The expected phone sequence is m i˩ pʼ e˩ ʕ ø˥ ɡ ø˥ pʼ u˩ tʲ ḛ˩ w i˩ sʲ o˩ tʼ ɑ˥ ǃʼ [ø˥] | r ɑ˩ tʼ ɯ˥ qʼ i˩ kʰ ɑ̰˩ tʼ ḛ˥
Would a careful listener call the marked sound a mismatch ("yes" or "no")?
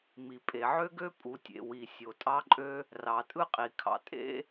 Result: no